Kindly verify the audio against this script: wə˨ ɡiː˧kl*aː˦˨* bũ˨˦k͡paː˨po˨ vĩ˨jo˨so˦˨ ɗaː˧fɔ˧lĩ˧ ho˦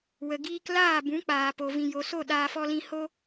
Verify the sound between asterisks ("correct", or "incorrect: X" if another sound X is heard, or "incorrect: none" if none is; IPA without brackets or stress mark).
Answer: correct